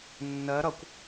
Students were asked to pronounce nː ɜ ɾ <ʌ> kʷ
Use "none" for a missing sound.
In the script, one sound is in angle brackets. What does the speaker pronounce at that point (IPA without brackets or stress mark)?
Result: ʌ